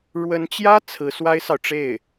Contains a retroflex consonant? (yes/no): yes